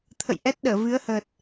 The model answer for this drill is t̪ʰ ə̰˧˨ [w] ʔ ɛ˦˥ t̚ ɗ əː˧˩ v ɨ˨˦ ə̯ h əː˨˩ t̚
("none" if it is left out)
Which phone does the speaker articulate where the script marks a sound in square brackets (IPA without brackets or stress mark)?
j